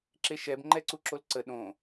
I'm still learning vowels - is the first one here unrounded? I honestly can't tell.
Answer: yes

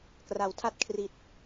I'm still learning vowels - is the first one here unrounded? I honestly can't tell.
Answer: yes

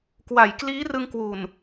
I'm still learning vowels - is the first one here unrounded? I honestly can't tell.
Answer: yes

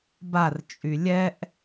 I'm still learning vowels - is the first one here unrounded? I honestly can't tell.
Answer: yes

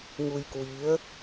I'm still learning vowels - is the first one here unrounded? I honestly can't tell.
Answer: no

